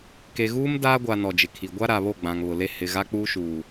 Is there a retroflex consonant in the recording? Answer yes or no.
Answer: no